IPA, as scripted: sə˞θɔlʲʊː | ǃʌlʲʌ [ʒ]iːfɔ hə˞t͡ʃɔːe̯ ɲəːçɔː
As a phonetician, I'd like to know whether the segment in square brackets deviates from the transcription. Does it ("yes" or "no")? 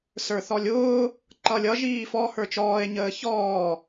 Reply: no